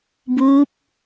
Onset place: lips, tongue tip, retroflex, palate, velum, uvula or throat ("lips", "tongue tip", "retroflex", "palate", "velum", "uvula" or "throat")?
lips